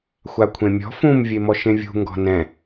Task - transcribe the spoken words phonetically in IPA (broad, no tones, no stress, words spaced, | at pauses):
xʷakʷʰẽmʲɔ̤ fũm vʲemɔʃẽvʲṳ ŋɡɔ̤nɛ̃